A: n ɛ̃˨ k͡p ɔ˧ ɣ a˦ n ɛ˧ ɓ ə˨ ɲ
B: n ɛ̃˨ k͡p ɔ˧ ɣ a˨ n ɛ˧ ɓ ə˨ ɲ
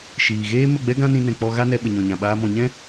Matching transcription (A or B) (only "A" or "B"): A